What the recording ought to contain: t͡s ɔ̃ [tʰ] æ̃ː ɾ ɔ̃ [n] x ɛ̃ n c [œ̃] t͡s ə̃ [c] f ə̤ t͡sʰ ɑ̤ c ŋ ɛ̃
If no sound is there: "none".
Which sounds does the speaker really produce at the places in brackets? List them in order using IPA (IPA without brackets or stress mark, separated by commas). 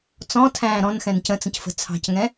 tʰ, n, ə̃, c